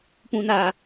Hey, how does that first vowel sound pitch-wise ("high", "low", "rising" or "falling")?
low